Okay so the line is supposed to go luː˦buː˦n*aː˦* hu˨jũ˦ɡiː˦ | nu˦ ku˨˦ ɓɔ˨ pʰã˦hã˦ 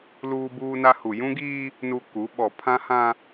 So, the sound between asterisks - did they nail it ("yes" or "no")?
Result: no